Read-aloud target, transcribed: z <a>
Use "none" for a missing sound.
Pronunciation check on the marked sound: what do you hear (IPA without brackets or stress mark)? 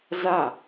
a